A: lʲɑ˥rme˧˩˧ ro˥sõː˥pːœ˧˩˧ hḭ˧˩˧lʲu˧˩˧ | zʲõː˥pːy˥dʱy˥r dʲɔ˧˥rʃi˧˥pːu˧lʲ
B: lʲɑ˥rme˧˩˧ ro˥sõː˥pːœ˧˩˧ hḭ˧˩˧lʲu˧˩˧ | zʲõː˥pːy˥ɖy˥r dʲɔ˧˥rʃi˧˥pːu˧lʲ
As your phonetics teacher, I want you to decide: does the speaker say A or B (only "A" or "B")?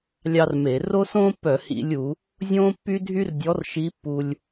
A